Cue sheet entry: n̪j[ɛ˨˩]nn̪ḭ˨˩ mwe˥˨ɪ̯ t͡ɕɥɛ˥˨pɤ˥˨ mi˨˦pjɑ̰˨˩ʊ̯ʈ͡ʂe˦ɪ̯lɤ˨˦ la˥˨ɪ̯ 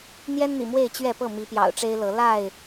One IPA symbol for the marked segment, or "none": ɛ˦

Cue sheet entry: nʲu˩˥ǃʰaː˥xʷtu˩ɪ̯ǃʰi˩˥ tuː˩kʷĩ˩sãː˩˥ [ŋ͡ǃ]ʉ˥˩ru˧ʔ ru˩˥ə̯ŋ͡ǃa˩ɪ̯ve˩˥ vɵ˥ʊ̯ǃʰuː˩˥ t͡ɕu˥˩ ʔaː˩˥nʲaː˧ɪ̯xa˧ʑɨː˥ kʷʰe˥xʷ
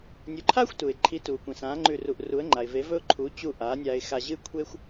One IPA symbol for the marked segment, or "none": ŋ͡ǃ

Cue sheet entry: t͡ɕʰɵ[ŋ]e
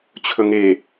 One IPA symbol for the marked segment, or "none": ŋ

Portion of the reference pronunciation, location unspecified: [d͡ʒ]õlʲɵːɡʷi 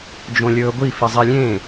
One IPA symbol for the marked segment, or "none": d͡ʒ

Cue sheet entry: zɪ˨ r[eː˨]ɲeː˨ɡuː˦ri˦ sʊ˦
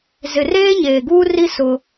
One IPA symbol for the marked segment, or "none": eː˦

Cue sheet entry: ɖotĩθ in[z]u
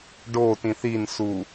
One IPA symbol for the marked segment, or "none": s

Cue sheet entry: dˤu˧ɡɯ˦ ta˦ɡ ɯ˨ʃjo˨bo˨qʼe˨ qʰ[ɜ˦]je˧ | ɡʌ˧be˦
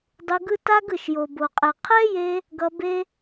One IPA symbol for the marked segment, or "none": ɛ˦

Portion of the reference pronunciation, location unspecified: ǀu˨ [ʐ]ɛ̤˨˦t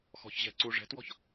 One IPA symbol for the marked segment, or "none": ʐ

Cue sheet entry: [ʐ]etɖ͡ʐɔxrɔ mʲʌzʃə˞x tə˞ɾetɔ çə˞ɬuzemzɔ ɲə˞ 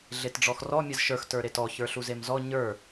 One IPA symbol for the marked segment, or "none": ɮ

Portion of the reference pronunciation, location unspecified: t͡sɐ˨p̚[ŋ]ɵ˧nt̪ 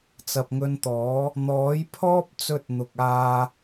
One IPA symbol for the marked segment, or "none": ŋ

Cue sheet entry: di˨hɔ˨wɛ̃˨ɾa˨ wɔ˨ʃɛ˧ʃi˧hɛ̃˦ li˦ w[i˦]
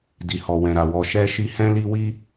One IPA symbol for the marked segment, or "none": i˦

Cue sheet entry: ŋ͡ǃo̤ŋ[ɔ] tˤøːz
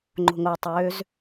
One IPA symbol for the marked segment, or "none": o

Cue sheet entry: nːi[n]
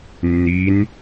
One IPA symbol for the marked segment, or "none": n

